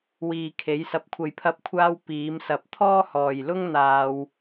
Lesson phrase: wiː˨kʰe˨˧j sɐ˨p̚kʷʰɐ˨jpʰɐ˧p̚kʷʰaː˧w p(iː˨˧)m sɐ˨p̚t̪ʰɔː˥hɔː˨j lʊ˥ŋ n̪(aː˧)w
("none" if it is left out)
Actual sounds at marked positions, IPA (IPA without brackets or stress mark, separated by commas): iː˨˧, aː˧